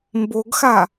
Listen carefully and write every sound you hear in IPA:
m b o ɡ x a

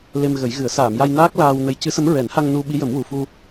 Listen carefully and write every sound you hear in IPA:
l e˧ m ɣ ə˨˩˦ j ɣ ɨ˨˩˦ ə̯ s aː˨˩˨ m j a˧ j n aː˦˥ k̚ l aː˧ w n ə˧˥ j c ɨ˧˥ s ə˧˥ m ɹ ɛ˨˩˦ n h a˧ ŋ n u˧ ɓ i˧˥ j ə˨˩˦ m w u˨˩ f u˧

